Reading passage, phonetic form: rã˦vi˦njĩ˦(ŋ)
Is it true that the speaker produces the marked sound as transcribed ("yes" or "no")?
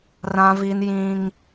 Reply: yes